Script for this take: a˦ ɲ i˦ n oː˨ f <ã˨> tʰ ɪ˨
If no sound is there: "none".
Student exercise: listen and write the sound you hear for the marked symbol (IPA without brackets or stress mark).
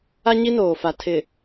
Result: a˨